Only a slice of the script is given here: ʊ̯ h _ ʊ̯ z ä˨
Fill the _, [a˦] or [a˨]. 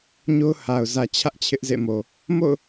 a˨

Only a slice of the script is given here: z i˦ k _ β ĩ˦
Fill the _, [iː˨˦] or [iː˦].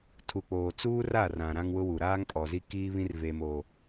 iː˦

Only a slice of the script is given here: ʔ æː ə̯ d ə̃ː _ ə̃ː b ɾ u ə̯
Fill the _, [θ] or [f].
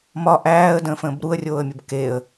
f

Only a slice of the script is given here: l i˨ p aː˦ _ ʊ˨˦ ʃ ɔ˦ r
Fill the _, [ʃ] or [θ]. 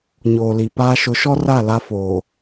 ʃ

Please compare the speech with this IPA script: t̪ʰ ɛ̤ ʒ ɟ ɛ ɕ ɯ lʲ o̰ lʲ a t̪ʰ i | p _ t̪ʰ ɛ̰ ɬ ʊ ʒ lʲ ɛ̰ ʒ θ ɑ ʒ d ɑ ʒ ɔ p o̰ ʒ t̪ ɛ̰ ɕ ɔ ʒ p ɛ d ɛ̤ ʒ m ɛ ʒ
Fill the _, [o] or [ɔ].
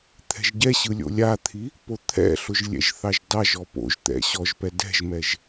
o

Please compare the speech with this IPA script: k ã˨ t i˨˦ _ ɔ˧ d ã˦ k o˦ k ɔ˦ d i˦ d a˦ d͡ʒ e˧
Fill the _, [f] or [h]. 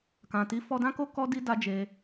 f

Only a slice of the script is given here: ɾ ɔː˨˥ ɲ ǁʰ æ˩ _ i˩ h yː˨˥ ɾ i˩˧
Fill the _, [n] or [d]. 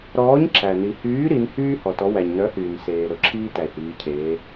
n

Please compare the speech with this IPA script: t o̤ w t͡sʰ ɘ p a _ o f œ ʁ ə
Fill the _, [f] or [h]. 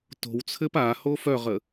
h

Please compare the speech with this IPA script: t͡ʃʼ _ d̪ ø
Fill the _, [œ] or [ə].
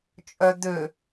œ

